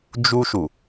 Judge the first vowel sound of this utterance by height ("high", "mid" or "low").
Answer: high